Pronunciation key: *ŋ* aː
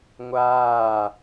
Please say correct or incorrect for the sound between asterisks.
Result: incorrect